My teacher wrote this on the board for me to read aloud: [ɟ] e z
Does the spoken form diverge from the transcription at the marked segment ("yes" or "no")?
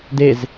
yes